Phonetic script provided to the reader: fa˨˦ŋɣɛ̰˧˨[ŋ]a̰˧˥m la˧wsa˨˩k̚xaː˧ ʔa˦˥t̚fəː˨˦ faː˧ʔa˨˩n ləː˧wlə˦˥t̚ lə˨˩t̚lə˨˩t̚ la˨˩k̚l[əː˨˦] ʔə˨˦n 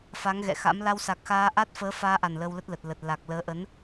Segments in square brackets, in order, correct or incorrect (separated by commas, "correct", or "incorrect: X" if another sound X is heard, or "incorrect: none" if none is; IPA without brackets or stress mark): incorrect: x, correct